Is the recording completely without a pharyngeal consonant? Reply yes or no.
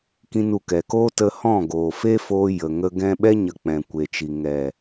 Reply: yes